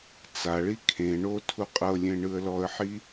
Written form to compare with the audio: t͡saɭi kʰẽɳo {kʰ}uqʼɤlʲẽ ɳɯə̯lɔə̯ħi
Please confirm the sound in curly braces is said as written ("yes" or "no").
no